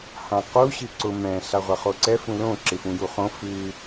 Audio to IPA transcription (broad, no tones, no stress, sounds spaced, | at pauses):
h ã q u ɕ ɨ ǀ ʊ m ɛ̃ ɬ a ʁʷ a χ o ǀ ɛ f ũ l õ ǁ ɪ f ũ j u χ õ f ɨ